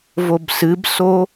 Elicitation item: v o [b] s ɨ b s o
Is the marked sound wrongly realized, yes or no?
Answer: no